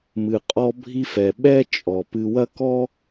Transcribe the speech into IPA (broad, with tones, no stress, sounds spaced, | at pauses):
m ɨ˨ qʼ ɔ˧ bʱ i˧ f ɛ˨ ɓ ɛ˦ t͡ʃʼ ɔ˨ p ɨ˧ w ɐ˦ k ɔ˦